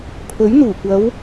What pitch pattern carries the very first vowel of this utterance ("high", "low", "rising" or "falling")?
rising